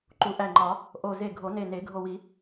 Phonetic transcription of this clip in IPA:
ǃ u˨˩˦ ʔ æ˧˩ ŋ͡ǃ ɒ˨˩˦ | ʔ o˧˩ z e˧˩ ɡʱ o˨˩˦ n e˧˩ n e˨˩˦ ɡʱ o˧˩ w i˨˩˦

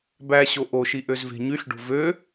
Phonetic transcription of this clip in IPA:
b æ ɕ o ʔ o ʃ i ʔ ø z v e̤ ɲ y ɬ ɖ o̤ v ø

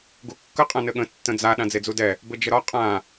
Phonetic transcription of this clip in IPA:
ɡ u kː ə qʼ ã n ɘ ɠ ə̃ tː ə̃ d͡z a ɗ ã d͡z e d͡z u d ɛ | b ɘ d͡ʒ ə ɾ ɒ qʼ ã

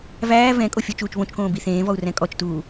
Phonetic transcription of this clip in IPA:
v æː v ɛ̃ kʼ o fʲ ɔ t͡ʃ uː t͡ʃ β õ t͡ʃ k õː b i θ ẽː v ɔ u̯ r ɛ̃ kʼ ɔ t͡ʃ t uː

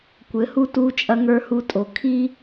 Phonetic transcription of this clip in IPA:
kʷ ɘ˨˦ h u˦ t uː˦ t͡ʃʼ ɐ˦ ŋ ə˞˦ h u˦ tʼ o˨ kʰ i˦

